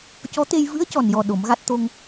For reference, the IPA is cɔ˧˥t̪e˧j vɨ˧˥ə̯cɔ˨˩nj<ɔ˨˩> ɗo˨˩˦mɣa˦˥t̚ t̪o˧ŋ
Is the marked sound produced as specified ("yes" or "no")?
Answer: yes